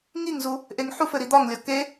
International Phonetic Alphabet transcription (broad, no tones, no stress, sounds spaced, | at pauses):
ŋ i ŋ z u | ʔ e ŋ ħ u f ɘ ɾ i d̪ ɒ ŋ lʲ ɒ k e